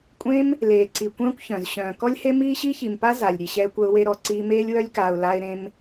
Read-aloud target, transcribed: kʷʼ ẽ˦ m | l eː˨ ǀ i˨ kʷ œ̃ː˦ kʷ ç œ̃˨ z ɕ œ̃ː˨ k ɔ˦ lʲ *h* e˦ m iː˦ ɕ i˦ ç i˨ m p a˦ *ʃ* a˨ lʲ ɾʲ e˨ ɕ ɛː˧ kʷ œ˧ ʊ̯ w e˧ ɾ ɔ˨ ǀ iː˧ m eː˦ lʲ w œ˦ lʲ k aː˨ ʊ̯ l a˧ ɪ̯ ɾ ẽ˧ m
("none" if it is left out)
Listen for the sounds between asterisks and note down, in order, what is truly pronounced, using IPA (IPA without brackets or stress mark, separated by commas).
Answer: h, z